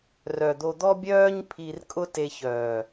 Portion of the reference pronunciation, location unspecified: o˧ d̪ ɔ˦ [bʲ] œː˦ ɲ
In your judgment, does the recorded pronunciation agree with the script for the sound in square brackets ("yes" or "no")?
yes